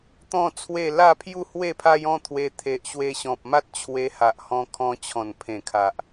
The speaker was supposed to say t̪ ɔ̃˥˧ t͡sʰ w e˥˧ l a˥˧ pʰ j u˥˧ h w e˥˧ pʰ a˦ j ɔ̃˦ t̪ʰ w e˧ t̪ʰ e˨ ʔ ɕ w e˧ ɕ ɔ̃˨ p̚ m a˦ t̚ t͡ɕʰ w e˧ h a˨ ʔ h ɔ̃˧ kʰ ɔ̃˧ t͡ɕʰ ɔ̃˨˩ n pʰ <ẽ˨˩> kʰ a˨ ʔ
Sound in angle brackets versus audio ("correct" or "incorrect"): correct